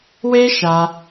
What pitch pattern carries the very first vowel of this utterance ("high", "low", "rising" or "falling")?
high